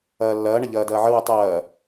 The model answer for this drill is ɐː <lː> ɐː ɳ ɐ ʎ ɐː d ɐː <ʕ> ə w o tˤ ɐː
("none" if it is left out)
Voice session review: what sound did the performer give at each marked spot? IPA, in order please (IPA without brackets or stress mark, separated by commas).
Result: lː, ʕ